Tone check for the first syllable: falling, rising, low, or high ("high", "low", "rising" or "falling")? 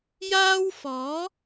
high